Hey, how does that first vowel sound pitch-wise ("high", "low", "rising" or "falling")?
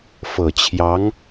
low